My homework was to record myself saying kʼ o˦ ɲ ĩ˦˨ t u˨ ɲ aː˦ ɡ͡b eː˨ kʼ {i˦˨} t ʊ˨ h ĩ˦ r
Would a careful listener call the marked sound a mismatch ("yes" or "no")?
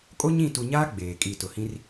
no